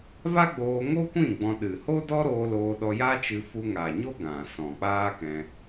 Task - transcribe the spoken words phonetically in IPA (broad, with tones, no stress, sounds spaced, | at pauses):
v a˦ ɡ͡b oː˧ ŋ o˦ kʷ ĩ˦˨ ɡ͡b ɔ̃˧ ɗ ɨ˨ h o˦ d ɔ˦ ɾ oː˧ l oː˧ ɗ ɔ˧ j a˦ t͡ʃ ɨ˧ f u˧ ŋ a˨ ɲ o˦ ɡ ã˨ s ɔ̃˨ k͡p aː˦ k ɛ̃˧